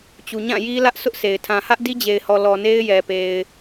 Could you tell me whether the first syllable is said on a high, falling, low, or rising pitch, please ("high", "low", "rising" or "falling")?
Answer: low